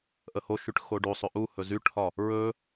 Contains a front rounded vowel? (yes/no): yes